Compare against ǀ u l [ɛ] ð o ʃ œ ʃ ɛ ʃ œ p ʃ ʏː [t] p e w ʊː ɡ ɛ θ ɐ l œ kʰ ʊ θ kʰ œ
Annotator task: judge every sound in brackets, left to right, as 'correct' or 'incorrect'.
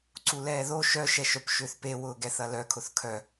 incorrect: ɛː, incorrect: θ

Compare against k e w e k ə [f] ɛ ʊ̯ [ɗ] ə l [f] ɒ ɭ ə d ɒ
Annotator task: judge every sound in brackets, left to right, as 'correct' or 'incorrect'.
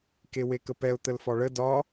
incorrect: p, incorrect: t̪, correct

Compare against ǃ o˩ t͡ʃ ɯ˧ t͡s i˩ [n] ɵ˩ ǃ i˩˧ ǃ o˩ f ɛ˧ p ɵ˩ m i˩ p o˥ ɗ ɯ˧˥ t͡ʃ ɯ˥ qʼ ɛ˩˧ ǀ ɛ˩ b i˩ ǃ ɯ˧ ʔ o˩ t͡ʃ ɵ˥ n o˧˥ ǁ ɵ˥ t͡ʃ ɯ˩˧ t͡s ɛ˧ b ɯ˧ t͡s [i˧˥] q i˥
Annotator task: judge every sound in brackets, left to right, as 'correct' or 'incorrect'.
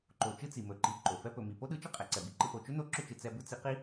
incorrect: m, correct

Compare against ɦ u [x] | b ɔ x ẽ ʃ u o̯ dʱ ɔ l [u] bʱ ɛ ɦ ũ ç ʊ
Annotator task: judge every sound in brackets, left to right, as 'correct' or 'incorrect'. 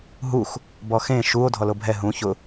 correct, incorrect: o

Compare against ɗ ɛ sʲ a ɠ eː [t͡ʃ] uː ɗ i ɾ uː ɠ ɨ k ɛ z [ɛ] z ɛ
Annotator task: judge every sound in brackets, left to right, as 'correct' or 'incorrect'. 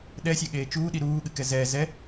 correct, incorrect: ɛː

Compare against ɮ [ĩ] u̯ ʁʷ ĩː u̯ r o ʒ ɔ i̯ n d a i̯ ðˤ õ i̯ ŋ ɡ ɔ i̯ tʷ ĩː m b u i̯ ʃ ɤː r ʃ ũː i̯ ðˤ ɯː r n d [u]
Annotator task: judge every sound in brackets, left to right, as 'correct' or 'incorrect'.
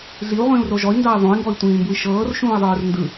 incorrect: i, incorrect: ɯ

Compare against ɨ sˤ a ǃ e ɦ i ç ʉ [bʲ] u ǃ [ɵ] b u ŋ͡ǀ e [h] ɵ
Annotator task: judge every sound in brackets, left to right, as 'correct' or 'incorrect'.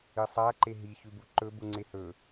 incorrect: b, correct, correct

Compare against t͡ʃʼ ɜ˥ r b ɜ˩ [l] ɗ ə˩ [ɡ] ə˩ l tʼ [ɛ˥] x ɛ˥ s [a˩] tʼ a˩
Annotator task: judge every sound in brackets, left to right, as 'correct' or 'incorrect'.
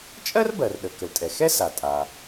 incorrect: r, incorrect: k, incorrect: ɛ˩, correct

